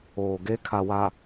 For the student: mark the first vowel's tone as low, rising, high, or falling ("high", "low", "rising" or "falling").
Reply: low